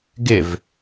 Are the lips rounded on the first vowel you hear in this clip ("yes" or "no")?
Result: no